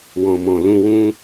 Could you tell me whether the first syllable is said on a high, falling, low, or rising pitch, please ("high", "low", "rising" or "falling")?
low